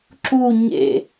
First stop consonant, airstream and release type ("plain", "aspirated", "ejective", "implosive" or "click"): click